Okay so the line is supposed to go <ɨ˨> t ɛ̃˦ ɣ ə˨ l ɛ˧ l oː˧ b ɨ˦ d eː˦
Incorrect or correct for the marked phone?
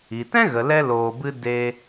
incorrect: i˨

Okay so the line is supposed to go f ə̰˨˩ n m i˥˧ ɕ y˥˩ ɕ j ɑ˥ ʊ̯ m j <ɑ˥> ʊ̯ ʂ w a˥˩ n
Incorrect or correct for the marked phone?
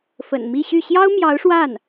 incorrect: ɑ˧˥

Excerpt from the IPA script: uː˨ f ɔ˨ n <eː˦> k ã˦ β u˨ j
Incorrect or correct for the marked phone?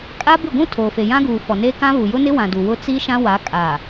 correct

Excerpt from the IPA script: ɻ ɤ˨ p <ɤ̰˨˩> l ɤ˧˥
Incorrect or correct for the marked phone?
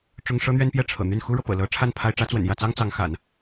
correct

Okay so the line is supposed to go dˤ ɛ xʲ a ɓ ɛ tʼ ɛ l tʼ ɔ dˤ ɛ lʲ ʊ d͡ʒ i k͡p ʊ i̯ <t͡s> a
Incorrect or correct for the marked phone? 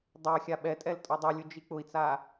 correct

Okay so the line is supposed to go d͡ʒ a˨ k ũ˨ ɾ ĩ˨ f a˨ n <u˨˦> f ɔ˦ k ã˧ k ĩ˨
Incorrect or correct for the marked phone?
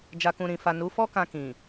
correct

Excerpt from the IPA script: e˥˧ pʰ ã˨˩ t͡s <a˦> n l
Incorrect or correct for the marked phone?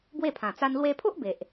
correct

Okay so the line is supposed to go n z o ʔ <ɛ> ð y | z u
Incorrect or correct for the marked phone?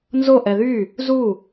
correct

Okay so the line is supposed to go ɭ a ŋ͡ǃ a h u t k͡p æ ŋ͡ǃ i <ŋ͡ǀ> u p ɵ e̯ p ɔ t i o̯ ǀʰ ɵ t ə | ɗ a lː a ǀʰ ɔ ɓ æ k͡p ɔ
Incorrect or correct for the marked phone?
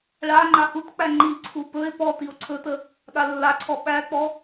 incorrect: ǀʰ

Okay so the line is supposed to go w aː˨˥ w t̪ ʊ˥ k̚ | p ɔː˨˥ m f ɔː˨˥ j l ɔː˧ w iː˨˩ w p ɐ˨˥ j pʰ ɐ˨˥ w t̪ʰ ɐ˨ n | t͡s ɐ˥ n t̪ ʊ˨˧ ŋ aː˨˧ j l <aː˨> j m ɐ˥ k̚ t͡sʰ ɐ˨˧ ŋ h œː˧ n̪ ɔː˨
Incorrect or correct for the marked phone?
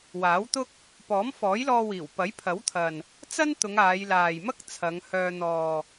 correct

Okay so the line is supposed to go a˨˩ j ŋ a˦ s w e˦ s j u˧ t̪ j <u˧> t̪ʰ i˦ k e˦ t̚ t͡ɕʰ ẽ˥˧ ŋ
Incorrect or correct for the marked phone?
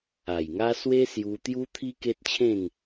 incorrect: u˦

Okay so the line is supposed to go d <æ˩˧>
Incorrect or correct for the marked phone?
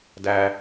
incorrect: æ˧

